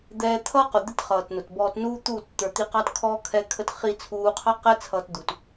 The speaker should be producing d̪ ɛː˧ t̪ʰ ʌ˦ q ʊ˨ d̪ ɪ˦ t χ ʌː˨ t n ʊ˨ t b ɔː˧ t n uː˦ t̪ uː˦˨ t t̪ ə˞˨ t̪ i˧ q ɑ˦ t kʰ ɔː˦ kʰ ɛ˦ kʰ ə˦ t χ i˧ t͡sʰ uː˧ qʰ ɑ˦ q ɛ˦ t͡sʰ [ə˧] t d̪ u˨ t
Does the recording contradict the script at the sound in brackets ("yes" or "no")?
yes